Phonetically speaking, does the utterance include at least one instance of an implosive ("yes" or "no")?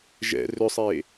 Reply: no